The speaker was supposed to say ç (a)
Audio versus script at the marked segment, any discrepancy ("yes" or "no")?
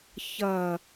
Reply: yes